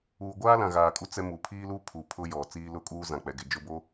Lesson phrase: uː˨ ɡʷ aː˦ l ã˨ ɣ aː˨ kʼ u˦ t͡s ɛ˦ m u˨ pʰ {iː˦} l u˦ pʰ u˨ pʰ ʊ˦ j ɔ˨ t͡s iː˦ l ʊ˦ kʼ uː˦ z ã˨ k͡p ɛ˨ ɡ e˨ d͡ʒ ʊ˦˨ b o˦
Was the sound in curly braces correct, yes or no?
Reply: yes